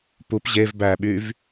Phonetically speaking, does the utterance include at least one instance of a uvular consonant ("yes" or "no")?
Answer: no